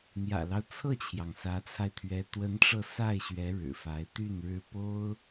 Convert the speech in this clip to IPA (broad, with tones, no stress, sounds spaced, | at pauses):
n̪ j ä̰˨˩ l ɑ˦ ʊ̯ t͡sʰ ɤ˥˩ t͡ɕʰ j ɑ˩ ŋ s ä˧˥ t͡sʰ a˧ ɪ̯ t̪ʰ ɥ ɛ˧˥ t̪ w ə˧˥ n ʈ͡ʂ ɤ˧ s a˥˩ ɪ̯ ɕ ɥ ɛ˧˥ ɻ ɻ̩˨˩ f a˧˥ ɪ̯ t̪ y˥˩ n ɻ ɻ̩˥ p o˥ ʊ̯